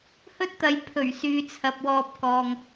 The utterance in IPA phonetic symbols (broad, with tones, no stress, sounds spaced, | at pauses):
h ɵ˥ t̚ t̪ ɐ˨˧ j pʰ ɵ˨˩ ɥ s yː˨ t͡sʰ ɐ˨ p̚ w ɔː˧ p̚ k ɔː˨ ŋ